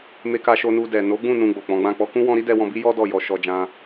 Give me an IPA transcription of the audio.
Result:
me˧ka˧ ʃo˧nu˧dɛ˨ no˨˦ɡ͡bũ˦˨ nũ˧ɡ͡bo˨k͡pɔ̃˨˦ɡ͡bã˦˨ k͡pɔ˧kũ˦ wɔ̃˧ɾi˦ dɛ˧wɔ̃˧bi˦jɔ˦ dɔ˦˨ jɔ˧ʃɔ˧d͡ʒã˦

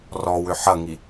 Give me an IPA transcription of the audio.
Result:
rɔwʏ ħɐŋi

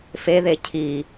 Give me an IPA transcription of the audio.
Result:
feðe cʰi

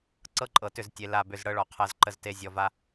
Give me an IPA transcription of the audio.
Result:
ǀɤ˦ǃʼɤ˨tʏ˦˨ztʲe˨ la˦˨bʏ˦˨z ɽɤ˦ɭɔ˨ qʰɤ˨zǃə˨zte˨ zʲɔ˨va˦

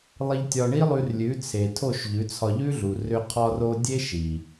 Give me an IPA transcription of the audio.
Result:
lˠi˧ʎtʲɒ˧ɳi˦lˠʉ˧r lʲʉ˨˦t͡sʰe˨tʰo˦˨ʃ ʎʉ˨˦t͡sʰɒ˧ʎʉ˦ɮu˨ rʏ˧qʰɒ˧ro˧ dʲe˦ʃi˨

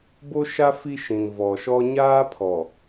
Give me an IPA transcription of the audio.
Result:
bo˦ʃa˦ fi˦ʃĩ˨nvɔ˨ʃɔ˦ ɲaː˦pʰɔ˨

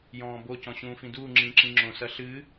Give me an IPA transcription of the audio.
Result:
jɔ̃ːbo cɔ̃ɕũːfĩduː ŋ͡ǁĩːǁĩŋ͡ǁõ sɐɬɨ

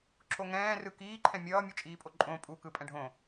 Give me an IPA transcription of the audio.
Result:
ǁoŋɛ̃ːrɯ kiːǃʰɛ̃ mʲʌː mʲut͡ʃʼiːpʼoǃʼõ pʼukɯ pʼɛ̃ɖʱõ

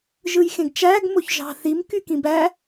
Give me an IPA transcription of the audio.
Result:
ʒɯjxẽɡt͡ʃæɡ moçʒɑ̤θim kykĩbæ

